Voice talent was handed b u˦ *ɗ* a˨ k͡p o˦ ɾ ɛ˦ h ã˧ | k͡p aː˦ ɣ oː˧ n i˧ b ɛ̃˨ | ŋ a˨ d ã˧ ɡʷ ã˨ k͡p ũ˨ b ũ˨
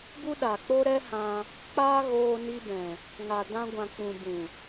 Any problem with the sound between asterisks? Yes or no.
no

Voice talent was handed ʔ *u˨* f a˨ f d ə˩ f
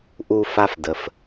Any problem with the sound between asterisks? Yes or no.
no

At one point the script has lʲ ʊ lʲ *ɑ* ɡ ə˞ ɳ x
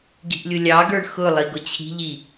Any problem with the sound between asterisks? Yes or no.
no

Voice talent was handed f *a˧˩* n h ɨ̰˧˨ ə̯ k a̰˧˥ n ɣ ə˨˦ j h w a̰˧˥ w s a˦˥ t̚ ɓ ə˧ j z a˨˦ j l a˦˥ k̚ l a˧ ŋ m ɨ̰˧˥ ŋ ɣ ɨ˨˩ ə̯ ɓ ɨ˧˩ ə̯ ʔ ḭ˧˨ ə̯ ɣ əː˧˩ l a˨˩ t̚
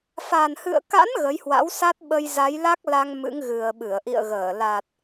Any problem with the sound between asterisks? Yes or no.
yes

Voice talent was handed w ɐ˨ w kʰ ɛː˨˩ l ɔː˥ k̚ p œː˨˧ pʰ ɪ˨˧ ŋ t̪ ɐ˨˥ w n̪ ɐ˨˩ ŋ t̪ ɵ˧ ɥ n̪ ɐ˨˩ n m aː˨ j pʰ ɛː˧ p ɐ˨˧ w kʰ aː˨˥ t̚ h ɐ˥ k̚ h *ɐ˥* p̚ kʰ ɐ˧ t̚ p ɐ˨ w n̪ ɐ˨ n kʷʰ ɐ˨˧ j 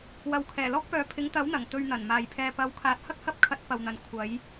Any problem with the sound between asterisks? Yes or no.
no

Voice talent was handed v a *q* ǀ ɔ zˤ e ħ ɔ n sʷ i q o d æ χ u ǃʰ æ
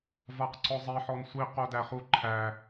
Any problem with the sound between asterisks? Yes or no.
no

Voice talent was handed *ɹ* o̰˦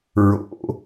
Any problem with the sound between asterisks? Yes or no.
no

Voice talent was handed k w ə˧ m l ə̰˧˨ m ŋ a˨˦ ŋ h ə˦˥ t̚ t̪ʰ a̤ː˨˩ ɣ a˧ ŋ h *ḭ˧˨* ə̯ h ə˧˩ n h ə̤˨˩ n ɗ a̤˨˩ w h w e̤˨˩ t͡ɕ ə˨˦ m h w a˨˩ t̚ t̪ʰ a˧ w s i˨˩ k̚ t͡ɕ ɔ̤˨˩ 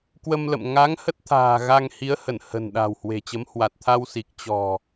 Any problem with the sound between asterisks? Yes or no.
yes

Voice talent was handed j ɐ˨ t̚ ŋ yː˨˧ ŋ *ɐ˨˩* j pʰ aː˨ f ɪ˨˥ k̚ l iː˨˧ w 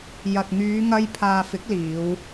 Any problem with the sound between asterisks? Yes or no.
yes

